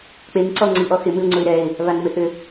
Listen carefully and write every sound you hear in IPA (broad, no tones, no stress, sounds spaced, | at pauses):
k͡p e ŋ ǀ ɔ ŋ͡ǀ i ʔ ɔ x ɪ m ɨ ʊ̯ ŋ͡ǀ ʊ ɪ̯ ɾ ɛ ɪ̯ | β a ŋ m ɪ θ ʏ